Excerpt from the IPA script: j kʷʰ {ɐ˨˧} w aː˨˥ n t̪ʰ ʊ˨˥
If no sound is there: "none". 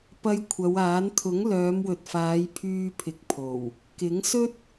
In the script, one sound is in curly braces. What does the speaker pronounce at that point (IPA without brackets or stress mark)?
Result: ɐ˨˧